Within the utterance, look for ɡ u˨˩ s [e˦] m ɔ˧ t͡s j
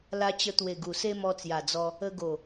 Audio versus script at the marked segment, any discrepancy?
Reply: no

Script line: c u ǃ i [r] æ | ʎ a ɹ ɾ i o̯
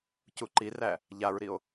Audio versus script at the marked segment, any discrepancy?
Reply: no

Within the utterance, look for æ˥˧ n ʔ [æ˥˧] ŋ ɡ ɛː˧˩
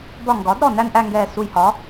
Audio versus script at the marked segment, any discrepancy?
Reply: no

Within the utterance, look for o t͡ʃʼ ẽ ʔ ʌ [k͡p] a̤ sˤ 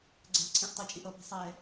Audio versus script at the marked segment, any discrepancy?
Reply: yes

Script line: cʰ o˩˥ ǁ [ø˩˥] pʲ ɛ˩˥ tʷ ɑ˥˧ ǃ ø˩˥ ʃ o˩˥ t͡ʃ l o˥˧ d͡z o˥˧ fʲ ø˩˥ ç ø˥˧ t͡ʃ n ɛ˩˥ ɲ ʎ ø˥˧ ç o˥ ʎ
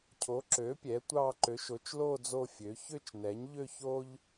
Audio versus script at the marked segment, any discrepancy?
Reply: no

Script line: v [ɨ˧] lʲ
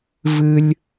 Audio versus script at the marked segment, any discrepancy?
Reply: no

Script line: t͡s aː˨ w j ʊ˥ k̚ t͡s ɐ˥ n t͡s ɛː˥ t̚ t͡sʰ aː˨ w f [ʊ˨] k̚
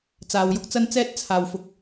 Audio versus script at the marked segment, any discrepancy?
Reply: no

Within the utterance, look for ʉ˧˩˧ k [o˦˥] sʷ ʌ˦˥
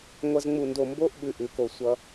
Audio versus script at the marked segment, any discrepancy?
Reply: yes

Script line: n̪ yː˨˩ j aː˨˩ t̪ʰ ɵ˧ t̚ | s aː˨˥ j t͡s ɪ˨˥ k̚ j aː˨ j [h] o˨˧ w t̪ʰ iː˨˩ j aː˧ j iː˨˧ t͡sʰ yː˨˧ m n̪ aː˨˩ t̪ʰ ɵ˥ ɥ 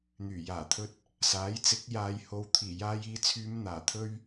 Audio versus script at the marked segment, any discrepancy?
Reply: no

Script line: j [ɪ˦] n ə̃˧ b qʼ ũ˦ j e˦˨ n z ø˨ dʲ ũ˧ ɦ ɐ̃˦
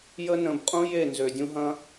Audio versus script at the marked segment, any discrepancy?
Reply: yes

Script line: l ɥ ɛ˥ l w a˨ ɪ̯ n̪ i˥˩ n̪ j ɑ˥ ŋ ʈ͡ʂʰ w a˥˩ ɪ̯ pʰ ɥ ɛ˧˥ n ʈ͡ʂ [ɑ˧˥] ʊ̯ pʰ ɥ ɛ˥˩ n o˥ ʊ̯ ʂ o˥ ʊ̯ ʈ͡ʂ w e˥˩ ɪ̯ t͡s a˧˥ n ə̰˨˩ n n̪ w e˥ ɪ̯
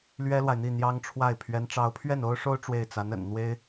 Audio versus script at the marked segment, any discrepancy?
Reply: no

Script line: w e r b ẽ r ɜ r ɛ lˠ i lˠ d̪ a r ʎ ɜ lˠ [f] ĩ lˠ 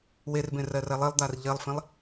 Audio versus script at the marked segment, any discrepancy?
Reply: no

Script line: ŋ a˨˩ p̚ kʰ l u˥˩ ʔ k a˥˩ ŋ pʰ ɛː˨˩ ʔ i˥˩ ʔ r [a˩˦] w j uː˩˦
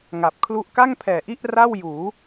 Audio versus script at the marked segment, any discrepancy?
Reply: yes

